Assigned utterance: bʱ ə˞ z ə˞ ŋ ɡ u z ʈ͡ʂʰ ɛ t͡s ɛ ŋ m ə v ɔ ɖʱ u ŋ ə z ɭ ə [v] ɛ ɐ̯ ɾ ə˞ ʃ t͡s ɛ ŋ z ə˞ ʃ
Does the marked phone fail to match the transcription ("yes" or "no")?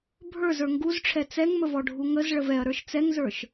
no